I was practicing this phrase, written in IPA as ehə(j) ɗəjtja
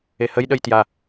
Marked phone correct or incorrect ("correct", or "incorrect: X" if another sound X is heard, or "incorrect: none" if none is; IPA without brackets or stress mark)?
correct